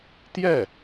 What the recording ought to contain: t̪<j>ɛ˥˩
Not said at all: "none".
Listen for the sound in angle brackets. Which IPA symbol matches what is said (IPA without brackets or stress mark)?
j